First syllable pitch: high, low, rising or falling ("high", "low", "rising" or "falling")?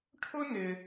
high